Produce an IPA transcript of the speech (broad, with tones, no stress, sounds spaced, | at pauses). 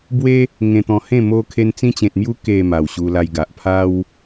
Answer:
b w e˦ | ŋ ẽ˧ t̪ ɔ̃˧ h ẽ˥˧ m o˧ kʰ e˧ n t͡s ĩ˧ t͡ɕ ẽ˨ t̚ m j u˧ k e˨˩ m a˨˩ w ɕ u˧ l a˧ j ɡ a˨ ʔ pʰ a˦ w